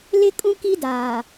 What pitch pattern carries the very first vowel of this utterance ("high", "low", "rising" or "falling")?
high